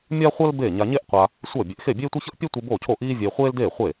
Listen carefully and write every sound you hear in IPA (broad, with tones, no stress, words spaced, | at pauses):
mʲa˥χʷʌ˥l be˥˩ ɲa˧ɲe˥ʔqʷa˧ | sʷʌː˥˩bʲe˧ʔ xe˥˩bʲeː˥tʷʌ˥çʌ˥ʔ pʲe˥tʷi˧ bo˥˩cʰo˥˩ʔiː˥vʲeː˧ χʷeː˥ldeː˥˩χʷe˥˩